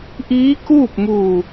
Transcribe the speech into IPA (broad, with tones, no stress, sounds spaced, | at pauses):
ʔ iː˧˥ k uː˥˨ p̚ m uː˧˩